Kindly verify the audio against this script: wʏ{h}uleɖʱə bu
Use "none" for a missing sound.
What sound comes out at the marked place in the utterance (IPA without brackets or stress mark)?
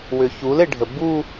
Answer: ç